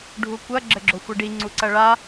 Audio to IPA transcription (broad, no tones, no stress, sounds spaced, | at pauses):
ɖʱ u kʷ ɐ ɡ͡ǁ ɘ ɡ͡ǁ o xʷ ɘ ɖ i ŋ͡ǀ u ǀ ɐ ɭ a